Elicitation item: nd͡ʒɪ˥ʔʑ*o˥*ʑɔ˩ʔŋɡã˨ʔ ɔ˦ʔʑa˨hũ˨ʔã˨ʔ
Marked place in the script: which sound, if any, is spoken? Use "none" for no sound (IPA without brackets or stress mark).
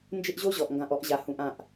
o˥